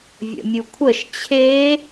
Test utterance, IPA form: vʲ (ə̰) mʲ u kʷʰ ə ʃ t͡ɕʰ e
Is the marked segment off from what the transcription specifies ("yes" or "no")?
no